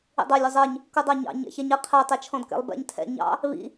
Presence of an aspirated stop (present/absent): present